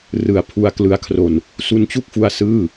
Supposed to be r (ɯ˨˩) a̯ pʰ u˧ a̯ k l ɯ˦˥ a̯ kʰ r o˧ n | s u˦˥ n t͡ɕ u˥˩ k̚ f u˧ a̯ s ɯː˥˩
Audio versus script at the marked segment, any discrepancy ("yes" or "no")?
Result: no